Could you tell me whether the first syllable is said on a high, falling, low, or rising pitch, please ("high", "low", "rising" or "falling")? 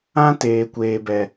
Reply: high